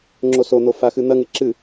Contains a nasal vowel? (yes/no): no